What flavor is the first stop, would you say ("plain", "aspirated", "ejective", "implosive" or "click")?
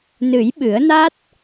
implosive